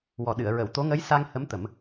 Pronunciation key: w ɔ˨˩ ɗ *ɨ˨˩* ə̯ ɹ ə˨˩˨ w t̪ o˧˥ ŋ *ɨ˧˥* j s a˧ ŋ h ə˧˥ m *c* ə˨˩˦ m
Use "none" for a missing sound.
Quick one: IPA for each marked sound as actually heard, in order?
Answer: ɨ˨˩˨, ə˧˥, t̪

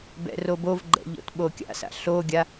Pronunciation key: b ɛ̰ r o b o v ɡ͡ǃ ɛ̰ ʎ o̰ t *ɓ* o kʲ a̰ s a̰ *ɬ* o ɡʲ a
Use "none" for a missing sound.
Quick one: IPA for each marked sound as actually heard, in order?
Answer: ɓ, ɬ

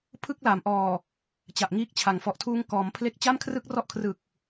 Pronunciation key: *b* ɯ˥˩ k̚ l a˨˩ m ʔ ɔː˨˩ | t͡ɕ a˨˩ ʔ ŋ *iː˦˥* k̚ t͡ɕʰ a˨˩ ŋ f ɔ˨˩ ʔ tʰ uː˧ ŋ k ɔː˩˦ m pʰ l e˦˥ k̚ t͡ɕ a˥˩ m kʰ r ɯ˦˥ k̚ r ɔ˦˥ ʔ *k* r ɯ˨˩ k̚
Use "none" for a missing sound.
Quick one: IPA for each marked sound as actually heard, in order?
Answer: pʰ, iː˦˥, kʰ

